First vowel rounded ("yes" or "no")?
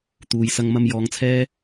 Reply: yes